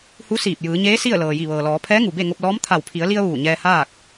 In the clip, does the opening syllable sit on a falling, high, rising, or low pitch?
rising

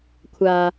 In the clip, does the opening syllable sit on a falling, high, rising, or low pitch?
high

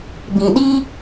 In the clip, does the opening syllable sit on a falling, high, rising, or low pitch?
low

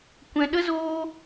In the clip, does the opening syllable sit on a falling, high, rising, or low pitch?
low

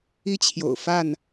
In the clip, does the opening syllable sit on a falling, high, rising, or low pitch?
high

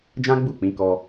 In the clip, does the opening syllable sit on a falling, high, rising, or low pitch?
high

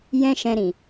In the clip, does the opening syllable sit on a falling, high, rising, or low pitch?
high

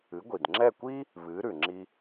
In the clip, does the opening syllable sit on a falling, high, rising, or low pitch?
rising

